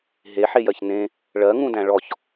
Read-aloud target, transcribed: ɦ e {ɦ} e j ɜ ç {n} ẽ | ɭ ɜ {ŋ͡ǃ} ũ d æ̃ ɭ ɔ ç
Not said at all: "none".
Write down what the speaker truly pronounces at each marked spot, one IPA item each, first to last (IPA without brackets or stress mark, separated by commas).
ħ, n, ŋ